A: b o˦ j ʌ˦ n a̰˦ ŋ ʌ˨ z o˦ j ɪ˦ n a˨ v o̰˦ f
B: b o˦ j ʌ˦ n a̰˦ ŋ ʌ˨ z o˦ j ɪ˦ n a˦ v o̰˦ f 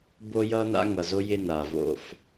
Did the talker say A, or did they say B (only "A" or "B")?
A